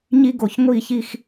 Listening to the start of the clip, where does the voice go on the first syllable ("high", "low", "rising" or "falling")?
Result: high